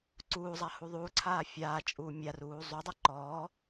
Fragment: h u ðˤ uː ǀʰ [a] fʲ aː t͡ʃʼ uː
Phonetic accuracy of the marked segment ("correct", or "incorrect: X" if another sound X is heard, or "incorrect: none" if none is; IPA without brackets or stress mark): incorrect: aː